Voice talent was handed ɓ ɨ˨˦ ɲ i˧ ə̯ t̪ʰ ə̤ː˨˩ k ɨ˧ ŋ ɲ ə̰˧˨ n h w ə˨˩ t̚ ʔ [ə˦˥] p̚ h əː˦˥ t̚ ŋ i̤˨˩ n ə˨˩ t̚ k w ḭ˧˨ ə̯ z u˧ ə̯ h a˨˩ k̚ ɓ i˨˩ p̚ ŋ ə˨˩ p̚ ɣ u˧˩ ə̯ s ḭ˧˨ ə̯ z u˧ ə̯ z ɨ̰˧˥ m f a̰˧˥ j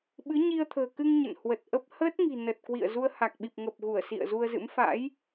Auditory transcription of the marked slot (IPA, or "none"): ə˦˥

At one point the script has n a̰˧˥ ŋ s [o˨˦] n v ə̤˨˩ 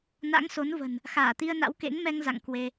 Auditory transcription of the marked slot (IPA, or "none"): o˨˦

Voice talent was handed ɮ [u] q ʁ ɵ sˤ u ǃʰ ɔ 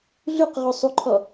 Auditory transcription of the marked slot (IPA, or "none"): ʉ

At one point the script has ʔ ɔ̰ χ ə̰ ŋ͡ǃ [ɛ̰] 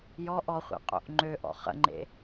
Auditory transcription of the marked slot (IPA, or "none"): ḛ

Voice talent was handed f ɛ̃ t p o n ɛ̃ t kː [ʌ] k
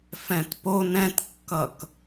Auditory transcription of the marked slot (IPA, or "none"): ʌ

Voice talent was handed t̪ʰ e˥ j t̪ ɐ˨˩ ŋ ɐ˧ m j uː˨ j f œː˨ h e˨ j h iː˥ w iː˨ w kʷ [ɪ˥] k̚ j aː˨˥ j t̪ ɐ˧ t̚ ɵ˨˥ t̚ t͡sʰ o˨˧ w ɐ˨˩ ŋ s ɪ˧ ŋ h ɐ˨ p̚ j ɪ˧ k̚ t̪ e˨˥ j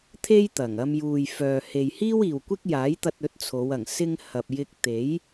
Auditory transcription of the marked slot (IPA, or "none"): ɪ˥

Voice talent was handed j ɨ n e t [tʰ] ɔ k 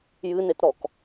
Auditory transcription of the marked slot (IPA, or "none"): ɾ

